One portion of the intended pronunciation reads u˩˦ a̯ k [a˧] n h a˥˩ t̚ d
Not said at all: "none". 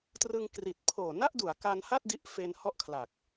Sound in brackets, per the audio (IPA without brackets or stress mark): a˧